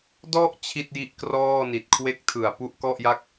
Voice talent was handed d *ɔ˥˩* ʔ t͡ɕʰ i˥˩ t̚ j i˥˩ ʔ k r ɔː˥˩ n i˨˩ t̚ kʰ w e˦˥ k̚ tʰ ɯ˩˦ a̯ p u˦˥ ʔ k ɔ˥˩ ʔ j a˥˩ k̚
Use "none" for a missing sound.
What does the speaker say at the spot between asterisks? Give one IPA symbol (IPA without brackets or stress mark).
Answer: ɔ˥˩